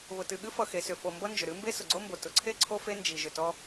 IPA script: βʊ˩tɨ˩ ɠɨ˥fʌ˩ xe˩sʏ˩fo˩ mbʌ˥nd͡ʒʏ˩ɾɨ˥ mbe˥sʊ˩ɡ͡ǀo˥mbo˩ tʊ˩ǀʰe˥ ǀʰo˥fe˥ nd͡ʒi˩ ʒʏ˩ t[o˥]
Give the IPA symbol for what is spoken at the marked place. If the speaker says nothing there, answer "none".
ɔ˥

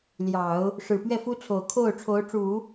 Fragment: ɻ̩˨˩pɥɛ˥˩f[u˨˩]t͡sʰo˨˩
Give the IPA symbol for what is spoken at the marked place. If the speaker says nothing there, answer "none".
u˥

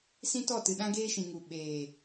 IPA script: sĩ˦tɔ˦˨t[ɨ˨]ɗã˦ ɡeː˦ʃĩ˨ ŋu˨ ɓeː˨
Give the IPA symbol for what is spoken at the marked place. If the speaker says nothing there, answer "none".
ɨ˨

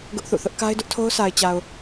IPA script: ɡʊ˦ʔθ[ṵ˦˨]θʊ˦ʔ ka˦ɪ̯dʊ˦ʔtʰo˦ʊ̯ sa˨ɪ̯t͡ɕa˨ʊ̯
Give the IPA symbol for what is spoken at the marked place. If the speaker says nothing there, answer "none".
ṵ˦˨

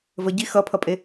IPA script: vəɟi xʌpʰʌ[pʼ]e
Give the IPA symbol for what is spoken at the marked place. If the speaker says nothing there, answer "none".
pʼ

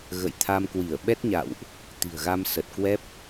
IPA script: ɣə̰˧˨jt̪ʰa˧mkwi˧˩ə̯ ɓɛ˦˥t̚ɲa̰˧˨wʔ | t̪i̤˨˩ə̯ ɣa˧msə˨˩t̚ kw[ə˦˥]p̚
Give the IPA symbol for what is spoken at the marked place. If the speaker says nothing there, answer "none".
ɛ˦˥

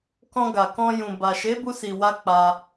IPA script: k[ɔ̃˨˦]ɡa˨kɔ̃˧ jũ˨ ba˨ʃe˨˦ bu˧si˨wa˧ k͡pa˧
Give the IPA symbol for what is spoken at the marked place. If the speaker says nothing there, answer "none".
ɔ̃˧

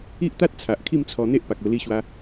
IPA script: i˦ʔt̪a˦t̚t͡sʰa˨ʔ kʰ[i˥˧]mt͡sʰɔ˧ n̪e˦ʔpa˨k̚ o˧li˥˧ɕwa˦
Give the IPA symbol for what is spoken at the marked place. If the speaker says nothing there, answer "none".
i˥˧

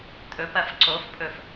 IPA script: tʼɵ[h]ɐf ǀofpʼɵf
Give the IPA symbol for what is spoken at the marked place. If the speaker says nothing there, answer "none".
p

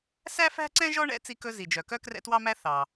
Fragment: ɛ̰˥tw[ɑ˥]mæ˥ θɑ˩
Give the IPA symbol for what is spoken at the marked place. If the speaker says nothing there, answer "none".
ɑ˥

